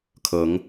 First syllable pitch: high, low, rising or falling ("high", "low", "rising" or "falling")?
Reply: rising